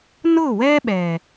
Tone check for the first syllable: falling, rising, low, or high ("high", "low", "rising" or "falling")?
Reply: falling